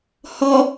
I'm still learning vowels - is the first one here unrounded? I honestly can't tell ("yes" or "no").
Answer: no